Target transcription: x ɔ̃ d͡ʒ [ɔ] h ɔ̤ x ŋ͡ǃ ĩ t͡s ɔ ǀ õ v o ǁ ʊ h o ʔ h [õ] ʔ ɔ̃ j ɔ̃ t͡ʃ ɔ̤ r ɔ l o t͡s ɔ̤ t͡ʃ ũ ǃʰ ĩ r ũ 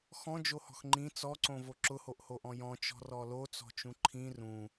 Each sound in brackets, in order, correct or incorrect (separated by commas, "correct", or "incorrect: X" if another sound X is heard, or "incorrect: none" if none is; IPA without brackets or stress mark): incorrect: o, incorrect: o